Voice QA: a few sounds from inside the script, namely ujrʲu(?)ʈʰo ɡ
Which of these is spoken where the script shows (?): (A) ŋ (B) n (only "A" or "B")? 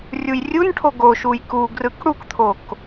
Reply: B